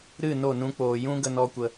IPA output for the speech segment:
ɾ ɨ˦˨ n o˦˨ n ũ˧ k͡p oː˨ j ũ˦ ɡ ə˧ n ɔ˦ kʷ ə˧

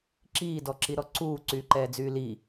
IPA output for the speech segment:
ǁ iː d ɔ ǁ i ɾ ɔ ǀ uː ǀ yː ǃ ɛː d͡z yː l i

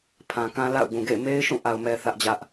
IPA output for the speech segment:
pʰ ã˨ k ã˦ l a̰˦˨ ʊ̯ ɡ ũ˨ ɡ ḛ˦˨ ɪ̯ m e˦ ɪ̯ ʃ ũ˦˨ ʔ a˨ ʊ̯ m ɛ˨ θ ä˦ ʔ d͡ʑ ä˦ ʔ

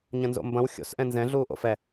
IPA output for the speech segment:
ɲ ɐ̃ n z o̰ m b ɐ̃ w xʲ o̰ s ʔ ɛ̃ n z ɛ̃ ɮ uː ʔ o̰ f ɛ

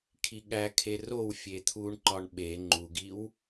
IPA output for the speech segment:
kʰ i ɠ æ kʰ e r o w fʲ e t̪ʰ u ɳ ǃ ɒ ɳ ɓ e ŋ͡ǃ u ɡ i w

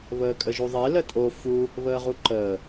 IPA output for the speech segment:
β əː kʼ ə ʒ u ðˤ e l ə tʼ o f u | β əː ʁ u ǃ əː

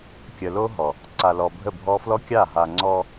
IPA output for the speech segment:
kʲ ə˨ l o˦ ɦ ɔ˨ | ǀ a˨ l ɔ˨ bʱ ə˦˨ bʱ ɔ˦ f l ɔ˦ kʲ a˦˨ ɦ a˨ ŋ͡ǀ ɔ˦

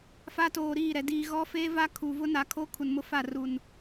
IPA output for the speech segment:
f a˦ t oː˨ ɾ iː˦˨ ɾ ɛ˨ d iː˨ ɣ ɔ˦ f eː˦ v a˦ kʰ u˨ v ʊ˦ n a˨ kʰ o˦ kʰ u˨ n m ʊ˦ f a˦˨ r u˨ n

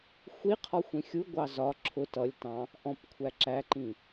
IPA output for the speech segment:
xʷ i qʰ ɔ xʷ ĩ xʲ u ɡʷ ɑ z ɒ ǁʰ ʊ t ʌ lʲ t ɑ̃ | ʔ ɔ̃ p kʷʰ æ ǁ æ ǃ ĩ

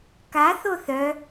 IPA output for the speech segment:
k a θ o θ œ

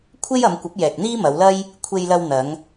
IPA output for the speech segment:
kʷʰ e˥ j ɐ˨˧ m kʷ ɐ˨˥ p̚ j ɛː˨ k̚ n̪ iː˥ m ɐ˨˧ w l ɐ˥ j | kʷʰ e˧ j l ɐ˧ w n̪ ɐ˨˧ ŋ

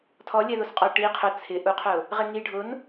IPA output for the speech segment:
tʰ ɔ lʲ ɛ ð o s qʼ ɔ ʈ i qʰ ʊ t͡sʰ ɪ ʔ u qʰ ʊ | ʁ ɪ ŋ i ɖʱ ʊ n

